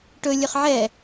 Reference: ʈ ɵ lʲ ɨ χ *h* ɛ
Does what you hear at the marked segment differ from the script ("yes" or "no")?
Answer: yes